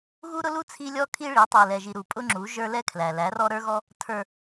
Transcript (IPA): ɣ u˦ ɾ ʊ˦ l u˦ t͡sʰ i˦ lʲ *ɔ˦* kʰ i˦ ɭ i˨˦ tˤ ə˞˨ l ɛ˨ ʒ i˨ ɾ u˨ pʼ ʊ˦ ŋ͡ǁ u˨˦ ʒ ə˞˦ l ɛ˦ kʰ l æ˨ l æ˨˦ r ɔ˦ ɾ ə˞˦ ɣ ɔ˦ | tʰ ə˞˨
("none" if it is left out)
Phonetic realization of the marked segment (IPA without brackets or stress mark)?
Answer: ɔ˦